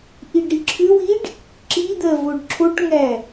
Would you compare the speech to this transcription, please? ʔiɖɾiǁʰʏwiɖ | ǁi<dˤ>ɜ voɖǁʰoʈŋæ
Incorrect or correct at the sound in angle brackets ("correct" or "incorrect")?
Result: incorrect